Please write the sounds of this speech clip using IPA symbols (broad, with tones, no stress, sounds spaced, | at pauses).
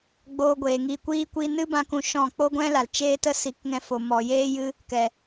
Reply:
ɡ͡b oː˧ ɡʷ eː˨ ŋ iː˧ kʷ iː˦ kʷ i˦ n ɨ˦ b ã˧ k ũ˨ ʃ ɔ̃˦˨ k͡p o˦ ɡʷ ɛ̃˦ l a˨ l t͡ʃ eː˦ t ə˦ s i˨˦ k ŋ ɛ̃˧ f o˨ m ɔ˨ j eː˦ j ɨ˦ | k ɛ˨